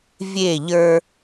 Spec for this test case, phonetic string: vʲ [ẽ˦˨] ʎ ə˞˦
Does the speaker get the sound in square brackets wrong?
yes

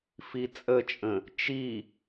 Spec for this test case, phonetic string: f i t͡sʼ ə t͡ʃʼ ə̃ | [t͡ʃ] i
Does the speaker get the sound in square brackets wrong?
no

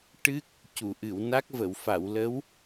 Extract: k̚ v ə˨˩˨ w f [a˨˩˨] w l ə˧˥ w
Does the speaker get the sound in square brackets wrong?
no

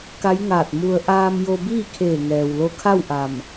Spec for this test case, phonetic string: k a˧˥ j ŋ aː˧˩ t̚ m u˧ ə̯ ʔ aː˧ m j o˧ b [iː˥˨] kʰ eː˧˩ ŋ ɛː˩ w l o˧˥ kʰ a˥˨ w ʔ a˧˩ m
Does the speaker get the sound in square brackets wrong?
no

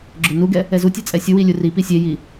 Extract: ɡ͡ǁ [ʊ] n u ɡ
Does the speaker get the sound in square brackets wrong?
no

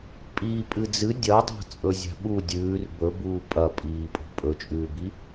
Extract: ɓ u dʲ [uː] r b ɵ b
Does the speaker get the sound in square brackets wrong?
yes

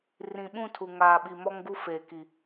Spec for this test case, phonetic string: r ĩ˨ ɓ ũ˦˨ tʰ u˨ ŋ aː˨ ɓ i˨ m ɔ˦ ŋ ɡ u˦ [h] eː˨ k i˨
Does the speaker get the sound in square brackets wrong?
yes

